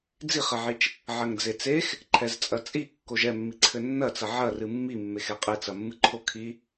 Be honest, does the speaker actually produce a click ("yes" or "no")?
yes